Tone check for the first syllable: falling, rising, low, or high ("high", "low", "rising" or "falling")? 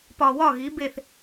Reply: low